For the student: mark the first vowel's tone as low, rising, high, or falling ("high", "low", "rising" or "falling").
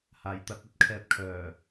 low